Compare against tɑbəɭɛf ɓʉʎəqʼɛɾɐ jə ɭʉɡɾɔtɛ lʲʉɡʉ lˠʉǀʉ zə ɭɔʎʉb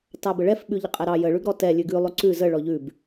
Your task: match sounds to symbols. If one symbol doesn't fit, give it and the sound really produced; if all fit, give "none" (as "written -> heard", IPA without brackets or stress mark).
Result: ɐ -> ɑ